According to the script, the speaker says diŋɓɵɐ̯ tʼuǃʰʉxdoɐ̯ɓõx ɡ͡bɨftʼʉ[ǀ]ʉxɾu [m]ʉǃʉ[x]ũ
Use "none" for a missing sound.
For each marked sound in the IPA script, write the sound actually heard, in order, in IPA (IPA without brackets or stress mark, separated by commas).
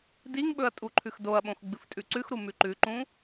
ǀ, m, ǃ